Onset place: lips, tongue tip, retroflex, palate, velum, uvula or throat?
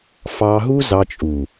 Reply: lips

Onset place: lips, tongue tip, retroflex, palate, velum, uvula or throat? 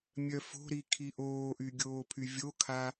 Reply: lips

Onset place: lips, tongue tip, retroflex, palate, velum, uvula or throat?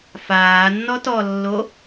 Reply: lips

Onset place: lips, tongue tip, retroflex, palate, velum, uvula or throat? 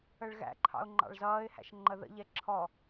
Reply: retroflex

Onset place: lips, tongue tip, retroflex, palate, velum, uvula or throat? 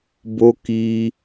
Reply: lips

